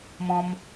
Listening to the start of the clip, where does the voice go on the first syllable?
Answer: high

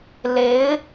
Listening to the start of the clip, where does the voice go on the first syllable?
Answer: rising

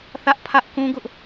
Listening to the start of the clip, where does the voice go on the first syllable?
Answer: high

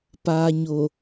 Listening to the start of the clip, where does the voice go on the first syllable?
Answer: low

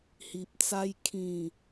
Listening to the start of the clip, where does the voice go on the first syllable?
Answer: low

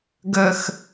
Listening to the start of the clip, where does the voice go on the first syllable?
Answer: low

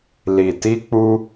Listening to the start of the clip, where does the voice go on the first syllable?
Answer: low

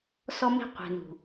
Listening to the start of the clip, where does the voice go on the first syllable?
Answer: high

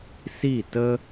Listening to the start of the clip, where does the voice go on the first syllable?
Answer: falling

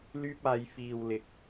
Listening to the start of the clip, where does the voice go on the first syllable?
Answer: high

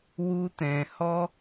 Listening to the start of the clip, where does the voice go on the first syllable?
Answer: high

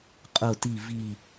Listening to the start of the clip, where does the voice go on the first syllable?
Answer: low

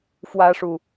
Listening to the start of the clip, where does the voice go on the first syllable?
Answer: high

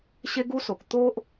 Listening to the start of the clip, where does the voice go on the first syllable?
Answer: high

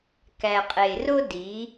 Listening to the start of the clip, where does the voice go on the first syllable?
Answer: low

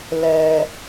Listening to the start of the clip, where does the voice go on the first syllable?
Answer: low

